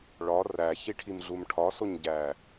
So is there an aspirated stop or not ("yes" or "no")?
yes